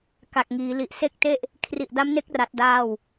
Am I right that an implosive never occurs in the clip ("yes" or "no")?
yes